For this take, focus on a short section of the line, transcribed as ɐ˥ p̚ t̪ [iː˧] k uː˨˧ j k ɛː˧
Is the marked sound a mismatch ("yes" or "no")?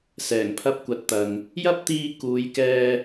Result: no